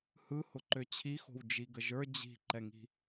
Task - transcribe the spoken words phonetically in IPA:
h ɯ h ʊ ǃ ø t͡ɕʰ i x o̤ w d͡ʒ i ɡ ə ʒ ə˞ d͡ʑ i̤ ǃ ɛ ŋ i̤

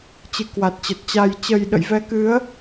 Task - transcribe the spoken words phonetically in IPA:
t͡ɕ ɨ˨˦ k w a˨˩ t̚ t͡ɕ ə˨˩ t̚ t͡ɕ a˨˩ j t͡ɕ ə˨˩ j ɗ ə̰˧˨ j v ɛ˨˦ k ɨ˨˦ ə̯

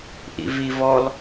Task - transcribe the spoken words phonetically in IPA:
ʔ ḭ v i v ɔ l

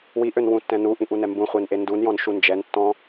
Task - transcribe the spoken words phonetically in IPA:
w i ʔ ø n w ũ tː ɛ̃ n u ʔ ĩ ʔ u n ɛ m b ũ χʷ e n ʔ e n d u n j ɔ̃ n ʃ u n d͡ʒ ɛ n tː ɔ̃

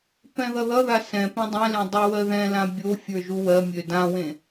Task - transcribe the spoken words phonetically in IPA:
p ɛ̃ ð ʌ ð ʌ ð a s ɛ̃ p ẽ dˤ ɛ̃ l ẽ dˤ o w ɜ ð ɛ̃ l ã bʲ o fʲ ə˞ ʒ u w ɜ mʲ ø d ã w ẽ

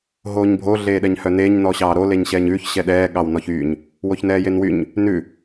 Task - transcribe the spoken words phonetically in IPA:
ɦ oː ɲ bʱ o ɮ eː ɗ ɛ ɲ h œ n eː ɲ n ɔ ɕ ɑː ɾ o l e ɲ ɕ ɛː ɲ ʉː ç ɕ ɛ ɗ ɛː ɠ ɑ w n ɔ ç yː ɲ | w o ç n ɛː j e n w y ɲ | n ʉ

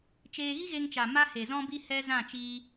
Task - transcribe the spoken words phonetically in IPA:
t͡ʃ eː˧ ɣ i˦ ɣ e˧ ŋ t͡ʃ a˨ m a˦ h e˨ z ɔ̃˦ b i˦ h ɛ˦ z ã˦˨ t͡ʃ iː˧

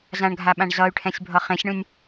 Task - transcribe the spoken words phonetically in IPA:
z ã ɳ ɡʱ a ɓ ã ɳ z ʌ y̯ ʈʰ ɛ̃ sʲ bʱ ʌ χ ẽ sʲ ɳ ũ nʲ

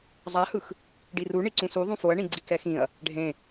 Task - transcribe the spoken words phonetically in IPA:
zˤ a h ɯ x | ɖ i r u ɳ i ǀ ũ s u ðˤ ũ f o ɐ̯ ɳ ĩ ɡ͡ǀ i k ɛ x ĩ ɐ̯ | ɖʱ ẽ

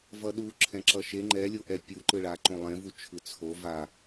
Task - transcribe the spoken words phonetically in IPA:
v ʌ ɗ u ǁʰ ɛ̃ ǁ ʌ ʃ e ŋ͡ǃ ɛ lʲ o ʔ ɛ pʲ u ǃ ɯ ɭ a ǃ õ lˠ ẽ v u t͡ʃʰ ɯ t͡sʰ o v a

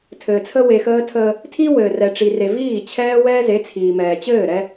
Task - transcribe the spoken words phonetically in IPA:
tʰ ɘː˨ t͡sʰ ə˦ w e˨ x əː˦ tʰ əː˦ | tʰ i˦ w ɘː˨ r ɛ˨ ʈ͡ʂ i˨ r e˨ v iː˦˨ t͡ɕʰ ɛː˦ w ɛː˦ z e˨˦ t͡sʰ iː˨ m ɛː˨ t͡ɕ ɘː˦˨ ɾ ɛ˦

